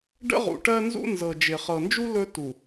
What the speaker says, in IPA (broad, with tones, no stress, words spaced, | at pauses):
ɖə̰˦ʁṵ˨ʈɜ˦nzṵ˦ nzɤ˨ d͡ʒɪ˨ χɤ˨nd͡ʒu˦ lɵ˦ tu˨